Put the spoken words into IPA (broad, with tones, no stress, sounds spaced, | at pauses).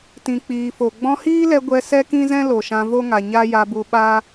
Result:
t ĩ˨ k͡p iː˨ f o˨ ɡ͡b ɔ̃˧ h iː˦ l ɛ˧ ɡʷ ɛ˧ s ɛ˦ k ĩ˦ z ɛ̃˦ l o˨ ʃ ã˧ v o˦ ŋ a˨ ɲ a˦ j a˧ b u˧ ɓ a˦